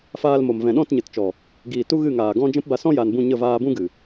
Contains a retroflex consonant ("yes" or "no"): no